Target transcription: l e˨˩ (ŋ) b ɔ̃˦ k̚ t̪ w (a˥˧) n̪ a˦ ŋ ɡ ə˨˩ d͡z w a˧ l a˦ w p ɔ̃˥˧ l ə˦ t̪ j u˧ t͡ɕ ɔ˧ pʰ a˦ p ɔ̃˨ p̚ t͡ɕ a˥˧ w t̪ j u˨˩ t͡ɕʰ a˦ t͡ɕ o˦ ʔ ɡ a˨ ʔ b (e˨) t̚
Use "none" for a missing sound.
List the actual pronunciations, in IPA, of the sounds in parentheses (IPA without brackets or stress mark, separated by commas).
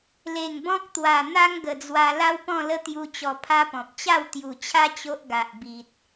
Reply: ŋ, a˨˩, i˨